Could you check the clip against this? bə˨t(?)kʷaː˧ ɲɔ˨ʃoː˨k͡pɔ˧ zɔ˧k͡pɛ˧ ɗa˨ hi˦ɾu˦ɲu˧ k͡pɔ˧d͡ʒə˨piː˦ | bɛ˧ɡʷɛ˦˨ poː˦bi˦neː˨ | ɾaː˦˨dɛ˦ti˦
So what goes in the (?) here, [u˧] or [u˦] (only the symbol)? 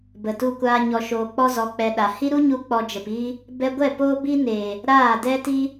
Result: u˧